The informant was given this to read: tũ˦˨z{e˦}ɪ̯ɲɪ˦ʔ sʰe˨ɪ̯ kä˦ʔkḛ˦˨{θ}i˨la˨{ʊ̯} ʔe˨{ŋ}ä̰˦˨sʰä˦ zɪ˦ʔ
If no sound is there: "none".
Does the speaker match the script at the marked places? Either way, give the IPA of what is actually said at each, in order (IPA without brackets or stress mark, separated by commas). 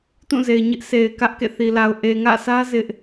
e˨, θ, ʊ̯, ŋ